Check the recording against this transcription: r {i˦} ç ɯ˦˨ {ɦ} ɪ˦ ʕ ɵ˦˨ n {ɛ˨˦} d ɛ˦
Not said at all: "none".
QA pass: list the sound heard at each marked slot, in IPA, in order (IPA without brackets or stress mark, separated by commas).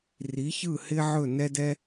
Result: i˨˦, h, ɛ˦